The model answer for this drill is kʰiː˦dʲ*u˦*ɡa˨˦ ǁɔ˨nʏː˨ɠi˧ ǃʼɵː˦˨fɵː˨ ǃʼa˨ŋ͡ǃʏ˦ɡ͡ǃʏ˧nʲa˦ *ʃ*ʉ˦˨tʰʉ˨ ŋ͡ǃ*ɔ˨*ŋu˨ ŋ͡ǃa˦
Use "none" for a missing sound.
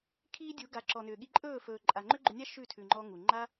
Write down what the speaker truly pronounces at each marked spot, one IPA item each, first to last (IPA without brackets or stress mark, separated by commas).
u˨˦, ʃ, ɔ˦